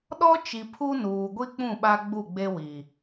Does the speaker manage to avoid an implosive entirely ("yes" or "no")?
no